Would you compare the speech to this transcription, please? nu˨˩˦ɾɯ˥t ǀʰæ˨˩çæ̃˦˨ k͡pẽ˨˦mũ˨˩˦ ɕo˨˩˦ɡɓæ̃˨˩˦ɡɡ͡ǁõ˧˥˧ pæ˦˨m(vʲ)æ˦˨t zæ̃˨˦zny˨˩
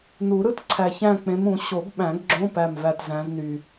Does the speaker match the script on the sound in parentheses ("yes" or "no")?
no